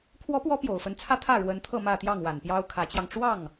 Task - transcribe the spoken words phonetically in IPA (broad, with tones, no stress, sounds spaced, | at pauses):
kʰ w ɔ˧˥ p w ɔ˧˥ p j o˨˩ ʊ̯ f ə˧˥ n t͡sʰ ä˥ t̪ʰ ä˥˩ ɻ w ə˧˥ n t̪ʰ ɤ˥˧ m ä˥˧ t̪ j ɑ˥˩ ŋ w a˨˩ n p j ɑ˥ ʊ̯ kʰ ä˧˥ t͡ɕ j ɑ˧ ŋ ʈ͡ʂ w ɑ˥˩ ŋ